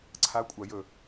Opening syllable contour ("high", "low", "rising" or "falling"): rising